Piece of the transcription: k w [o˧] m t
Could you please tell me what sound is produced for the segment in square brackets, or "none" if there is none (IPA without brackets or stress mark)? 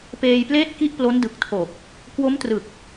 o˦˥